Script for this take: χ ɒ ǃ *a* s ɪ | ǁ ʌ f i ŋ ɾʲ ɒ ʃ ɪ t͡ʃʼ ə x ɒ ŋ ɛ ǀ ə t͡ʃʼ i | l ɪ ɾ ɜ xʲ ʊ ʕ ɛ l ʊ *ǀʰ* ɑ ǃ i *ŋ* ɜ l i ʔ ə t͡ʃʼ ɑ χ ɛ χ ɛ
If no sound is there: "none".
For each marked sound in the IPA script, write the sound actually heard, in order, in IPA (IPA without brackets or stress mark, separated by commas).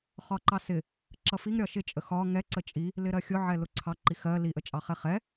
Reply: ɑ, ǀʰ, x